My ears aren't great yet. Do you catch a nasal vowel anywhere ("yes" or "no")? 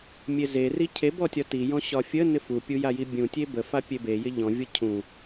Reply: yes